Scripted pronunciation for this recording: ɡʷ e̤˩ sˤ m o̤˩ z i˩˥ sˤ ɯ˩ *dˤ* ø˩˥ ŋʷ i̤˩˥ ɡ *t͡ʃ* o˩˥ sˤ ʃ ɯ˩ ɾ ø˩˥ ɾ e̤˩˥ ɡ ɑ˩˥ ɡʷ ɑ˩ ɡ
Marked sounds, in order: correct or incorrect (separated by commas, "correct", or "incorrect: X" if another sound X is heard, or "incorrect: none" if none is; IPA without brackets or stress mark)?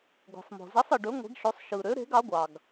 incorrect: ɖ, incorrect: ʃ